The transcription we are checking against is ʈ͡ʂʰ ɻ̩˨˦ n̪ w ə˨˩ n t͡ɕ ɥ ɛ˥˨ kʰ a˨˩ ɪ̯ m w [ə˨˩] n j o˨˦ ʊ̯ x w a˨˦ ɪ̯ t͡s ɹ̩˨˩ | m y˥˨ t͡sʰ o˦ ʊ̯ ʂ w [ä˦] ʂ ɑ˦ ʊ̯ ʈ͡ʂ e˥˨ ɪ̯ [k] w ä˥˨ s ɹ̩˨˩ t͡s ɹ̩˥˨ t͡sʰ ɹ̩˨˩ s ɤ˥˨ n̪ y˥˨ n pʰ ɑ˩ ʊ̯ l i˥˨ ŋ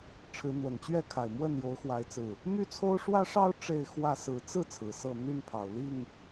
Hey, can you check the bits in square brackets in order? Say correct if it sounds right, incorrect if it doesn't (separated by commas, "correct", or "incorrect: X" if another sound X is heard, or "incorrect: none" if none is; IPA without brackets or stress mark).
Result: incorrect: ə˥˨, correct, incorrect: x